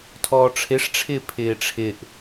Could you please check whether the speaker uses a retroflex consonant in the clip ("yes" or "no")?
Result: yes